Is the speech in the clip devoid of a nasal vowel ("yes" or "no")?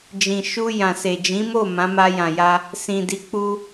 no